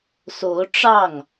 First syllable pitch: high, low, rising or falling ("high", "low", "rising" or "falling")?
rising